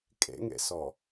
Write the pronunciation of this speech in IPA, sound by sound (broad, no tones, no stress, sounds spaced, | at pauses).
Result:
kʼ ḛ ŋ ḛ s ɔ